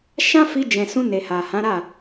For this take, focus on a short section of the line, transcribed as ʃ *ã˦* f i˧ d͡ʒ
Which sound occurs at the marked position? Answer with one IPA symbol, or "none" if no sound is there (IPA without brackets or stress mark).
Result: ã˦